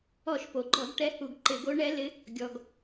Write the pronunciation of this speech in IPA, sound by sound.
ɔ˧˩˧ ʃ p o˩ ɡ͡ǃ ɔ˧˩˧ ɡ ʈ ɛ˧˥ h u˧˩˧ ɡ ǃ ɪ˧˩˧ ɡ o˧˥ ɳ ɛ˧˥ l ɪ˧˥ | ɡʲ ɔ˩ ɡ

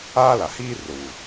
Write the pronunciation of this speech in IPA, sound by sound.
aː˦ l a˨ h iː˦ r ʊ˨ w u˨

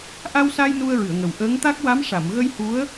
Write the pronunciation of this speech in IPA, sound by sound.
ʔ a˧ w s a˧ j n u˧ ə̯ ɹ ɨ˨˩˨ ə̯ ŋ ə˨˩ w ʔ əː˧˥ ŋ t̪ a˦˥ k̚ w a˧˥ m ʂ a˨˩˨ m ɣ ə˧ j h u˧˥ ə̯

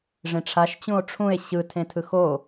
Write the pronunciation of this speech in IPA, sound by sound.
ʐ ẽ ʈ͡ʂʰ a ʃ t͡ɕ ũ o̯ ʈ͡ʂʰ ũ e̯ ɕ ɯ tʰ ẽ tʰ ɯ x o

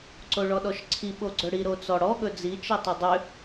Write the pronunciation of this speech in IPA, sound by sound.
ǀ o ɭ ɔ ɗ ɔ ʃ ǀʰ i ɓ o ɡ͡ǀ ɵ ɽ i ɾ o t͡s ɔ ɽ ɔ ɠ ɵ d͡z i t͡ʃ i tˤ ʏ dˤ ʏ

